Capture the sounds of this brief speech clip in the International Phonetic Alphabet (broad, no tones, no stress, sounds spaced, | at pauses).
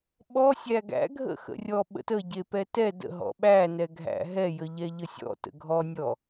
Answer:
ɓ ɔ sʲ æ ɡ æ̰ ɡʱ ə̰ x ə̰ rʲ ɔ ɓ ə̰ t ə ɟ e p ɛ t ɛ d ə̰ ɦ ɔ̰ ɓ æ n ɛ ɡʱ æ̰ ɦ ɛ j ə ʎ ɛ ʎ ə sʲ ɔ̰ t ə̰ ɡʱ ɔ nʲ ɔ